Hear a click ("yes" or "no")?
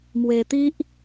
no